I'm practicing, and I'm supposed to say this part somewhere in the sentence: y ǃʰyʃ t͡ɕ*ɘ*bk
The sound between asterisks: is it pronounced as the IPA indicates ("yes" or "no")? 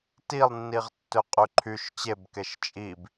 no